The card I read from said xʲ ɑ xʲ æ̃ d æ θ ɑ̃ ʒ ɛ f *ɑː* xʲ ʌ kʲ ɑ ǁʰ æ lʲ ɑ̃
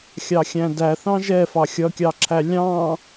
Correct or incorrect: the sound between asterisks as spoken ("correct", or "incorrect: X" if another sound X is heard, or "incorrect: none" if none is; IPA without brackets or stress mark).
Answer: incorrect: ɑ